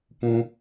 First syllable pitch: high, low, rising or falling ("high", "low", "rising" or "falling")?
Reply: high